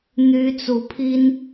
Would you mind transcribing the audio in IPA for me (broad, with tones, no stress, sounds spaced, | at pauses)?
n̪ y˥ t͡s u˧˥ pʰ i˥ n